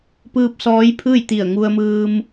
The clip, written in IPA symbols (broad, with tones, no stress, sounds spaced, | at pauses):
p ɯː˧ p̚ s ɔː˧˥ j pʰ ɯː˥˨ j t̪ i˧˩ ə̯ ŋ u˧ ə̯ m ɯː˧ m